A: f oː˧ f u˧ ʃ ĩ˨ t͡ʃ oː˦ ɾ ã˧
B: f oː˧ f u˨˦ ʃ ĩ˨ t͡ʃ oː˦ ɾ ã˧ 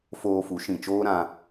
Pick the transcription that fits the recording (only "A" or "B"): B